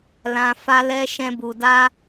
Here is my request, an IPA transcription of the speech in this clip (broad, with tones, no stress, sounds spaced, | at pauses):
l ã˧ f a˦ l ɛ˦ ʃ ɛ̃˦ b u˧ d a˦